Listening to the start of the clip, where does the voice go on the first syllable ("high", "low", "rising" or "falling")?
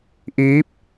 rising